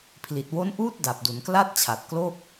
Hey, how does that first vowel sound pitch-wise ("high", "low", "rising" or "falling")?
low